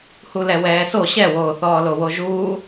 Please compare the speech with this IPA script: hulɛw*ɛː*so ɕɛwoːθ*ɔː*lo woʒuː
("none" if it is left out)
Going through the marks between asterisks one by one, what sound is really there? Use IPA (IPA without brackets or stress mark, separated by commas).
ɛː, ɔː